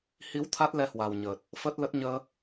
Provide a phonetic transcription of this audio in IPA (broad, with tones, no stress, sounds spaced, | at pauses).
h i˨˦ w t̪ʰ a˦˥ t̚ l ɛ˧ h w a˨˩ w ɲ əː˨˩ t̚ | f əː˦˥ t̚ l ə˦˥ t̚ ɲ əː˧